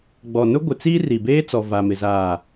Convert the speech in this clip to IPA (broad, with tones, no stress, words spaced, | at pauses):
ɡ͡bɔ˨nʊ˦ɡʷɪ˨t͡siː˦ ri˨beː˦t͡sɔ˨ va˨mɪ˨ zaː˨